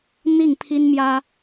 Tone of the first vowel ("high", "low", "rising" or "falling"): falling